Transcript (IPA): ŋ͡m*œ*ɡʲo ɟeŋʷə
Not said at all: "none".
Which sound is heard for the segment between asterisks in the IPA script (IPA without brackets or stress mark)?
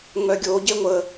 œ